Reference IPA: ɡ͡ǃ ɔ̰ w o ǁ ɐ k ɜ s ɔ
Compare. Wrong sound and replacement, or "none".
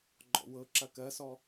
o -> ɤ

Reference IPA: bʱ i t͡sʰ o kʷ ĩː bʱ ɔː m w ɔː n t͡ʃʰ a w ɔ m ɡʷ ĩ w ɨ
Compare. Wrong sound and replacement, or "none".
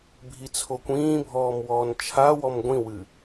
none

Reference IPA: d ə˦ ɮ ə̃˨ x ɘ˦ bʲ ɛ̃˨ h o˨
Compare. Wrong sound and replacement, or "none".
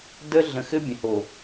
none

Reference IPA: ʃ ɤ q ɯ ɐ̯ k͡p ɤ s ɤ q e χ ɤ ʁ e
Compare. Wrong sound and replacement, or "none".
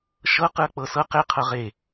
χ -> qʰ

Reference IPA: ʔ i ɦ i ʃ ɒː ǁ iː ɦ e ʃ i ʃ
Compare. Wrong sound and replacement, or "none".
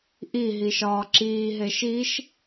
none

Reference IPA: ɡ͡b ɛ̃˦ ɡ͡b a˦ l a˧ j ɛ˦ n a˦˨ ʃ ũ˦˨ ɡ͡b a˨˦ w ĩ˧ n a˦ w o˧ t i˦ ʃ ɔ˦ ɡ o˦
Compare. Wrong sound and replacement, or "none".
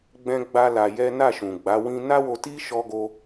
ũ˦˨ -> ũ˨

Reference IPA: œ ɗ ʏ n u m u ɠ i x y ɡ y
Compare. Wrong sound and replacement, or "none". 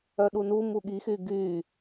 ʏ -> u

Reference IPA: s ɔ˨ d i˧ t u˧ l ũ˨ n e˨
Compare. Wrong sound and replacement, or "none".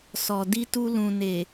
none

